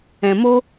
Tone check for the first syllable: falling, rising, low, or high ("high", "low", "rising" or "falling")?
low